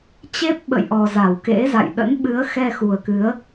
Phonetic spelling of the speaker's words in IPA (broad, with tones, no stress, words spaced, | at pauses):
t͡ɕe˦˥p̚ɓə̰˧˨jʔɔ˨˩ za˧˩wkḛ˧˥za̰˧˨j ɗə̰˧˥nɓɨ˨˦ə̯xɛ˧ xu˨˩ə̯kɨ˨˦ə̯